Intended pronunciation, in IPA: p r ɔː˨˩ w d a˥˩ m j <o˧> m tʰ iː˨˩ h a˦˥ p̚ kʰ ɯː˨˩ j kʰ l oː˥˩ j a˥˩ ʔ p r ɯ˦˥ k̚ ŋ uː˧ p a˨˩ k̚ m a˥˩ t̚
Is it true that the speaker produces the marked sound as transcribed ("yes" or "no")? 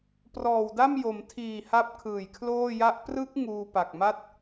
no